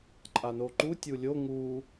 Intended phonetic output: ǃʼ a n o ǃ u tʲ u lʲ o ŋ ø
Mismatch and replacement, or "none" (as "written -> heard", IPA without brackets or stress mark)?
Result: ø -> u